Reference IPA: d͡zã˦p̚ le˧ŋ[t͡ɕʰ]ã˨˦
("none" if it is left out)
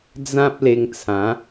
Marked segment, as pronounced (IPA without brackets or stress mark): t͡sʰ